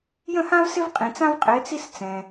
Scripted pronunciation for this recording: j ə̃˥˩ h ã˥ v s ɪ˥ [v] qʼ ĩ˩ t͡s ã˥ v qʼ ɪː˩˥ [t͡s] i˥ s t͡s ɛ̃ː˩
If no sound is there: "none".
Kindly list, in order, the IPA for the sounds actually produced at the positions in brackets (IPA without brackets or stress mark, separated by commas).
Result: v, t͡s